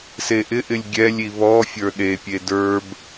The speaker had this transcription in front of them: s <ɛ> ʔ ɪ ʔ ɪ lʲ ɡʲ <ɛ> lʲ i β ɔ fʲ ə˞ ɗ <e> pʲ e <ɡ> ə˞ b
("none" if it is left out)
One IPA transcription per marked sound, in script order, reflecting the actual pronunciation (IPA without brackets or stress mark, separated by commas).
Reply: e, ɛ, e, d